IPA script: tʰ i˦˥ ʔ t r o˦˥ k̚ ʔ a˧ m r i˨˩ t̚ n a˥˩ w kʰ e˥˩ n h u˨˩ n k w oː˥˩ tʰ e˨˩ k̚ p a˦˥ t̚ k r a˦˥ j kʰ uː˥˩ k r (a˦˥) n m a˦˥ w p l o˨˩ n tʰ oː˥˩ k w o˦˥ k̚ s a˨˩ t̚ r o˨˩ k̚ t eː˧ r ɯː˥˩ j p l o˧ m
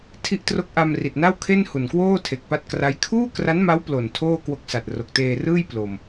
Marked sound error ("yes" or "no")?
no